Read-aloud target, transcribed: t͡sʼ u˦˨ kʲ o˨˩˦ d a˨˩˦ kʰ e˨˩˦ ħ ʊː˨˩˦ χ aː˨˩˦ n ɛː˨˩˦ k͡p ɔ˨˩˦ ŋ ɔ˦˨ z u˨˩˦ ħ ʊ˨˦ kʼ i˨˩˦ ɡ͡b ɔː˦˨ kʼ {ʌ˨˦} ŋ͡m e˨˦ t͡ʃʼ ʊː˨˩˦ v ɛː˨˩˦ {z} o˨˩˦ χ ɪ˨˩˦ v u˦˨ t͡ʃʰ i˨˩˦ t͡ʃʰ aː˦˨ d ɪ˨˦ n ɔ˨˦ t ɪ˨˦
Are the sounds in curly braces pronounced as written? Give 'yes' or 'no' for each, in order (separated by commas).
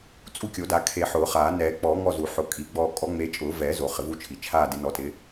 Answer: no, yes